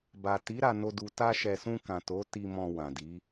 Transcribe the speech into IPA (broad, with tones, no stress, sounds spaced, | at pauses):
b a˨ t i˨˦ ɾ a˧ n o˧ d u˨ t a˧ ʃ ɛ˨ s ũ˧ k ã˨ t o˨˦ t i˧ m ɔ̃˧ w ã˨ d i˨˦